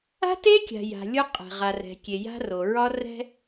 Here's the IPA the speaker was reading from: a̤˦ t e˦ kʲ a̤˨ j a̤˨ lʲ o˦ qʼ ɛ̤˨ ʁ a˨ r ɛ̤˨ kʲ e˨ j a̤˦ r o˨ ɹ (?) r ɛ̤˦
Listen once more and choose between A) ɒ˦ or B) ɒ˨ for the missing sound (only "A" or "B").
A